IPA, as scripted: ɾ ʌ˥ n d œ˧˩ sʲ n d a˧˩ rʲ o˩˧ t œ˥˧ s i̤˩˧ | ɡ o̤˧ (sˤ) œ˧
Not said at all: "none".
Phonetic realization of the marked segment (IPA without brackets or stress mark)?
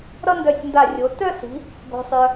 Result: sˤ